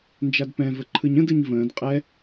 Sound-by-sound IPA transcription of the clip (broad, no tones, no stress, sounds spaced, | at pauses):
n d͡ʒ a d p ɛ̃ v ə ǃʰ ɯ ɲ ə̃ d ɯ ɲ v ə̃ː d qʼ ɛ